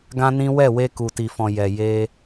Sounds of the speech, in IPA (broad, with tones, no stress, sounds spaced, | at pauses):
ɡ ã˦ n ĩ˦ w ɛ˦˨ w e˧ k u˨ t i˨ f ɔ̃˨ j ɛ˨ j e˧